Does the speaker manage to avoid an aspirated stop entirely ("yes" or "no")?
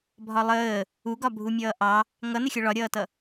yes